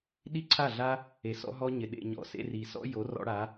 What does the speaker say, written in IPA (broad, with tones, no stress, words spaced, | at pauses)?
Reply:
ɗi˦ ǀʰa˦˨ɮa˦ | e˨sɔ̰˧ɦɔ˧ ɲɪ˨ɗḛ˨ɲɔ̰˨sḛ˧ ri˨sɔ̰˦ jo˨˦rɔ̰˧ɽa˨˦